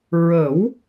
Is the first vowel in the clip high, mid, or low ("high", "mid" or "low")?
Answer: mid